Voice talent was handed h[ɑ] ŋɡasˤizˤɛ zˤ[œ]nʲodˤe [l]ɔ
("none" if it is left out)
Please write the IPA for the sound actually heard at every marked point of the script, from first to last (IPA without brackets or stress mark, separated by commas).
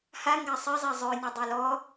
a, œ, l